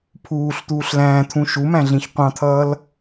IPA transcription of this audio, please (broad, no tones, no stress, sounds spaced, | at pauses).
pʰ uː ɬ t̪ uː ɬ l æ̃ː t̪ʰ ũ ʃ u m æ̃ ɮ ĩ ç qʷ ɑ̃ t̪ʰ ʌː l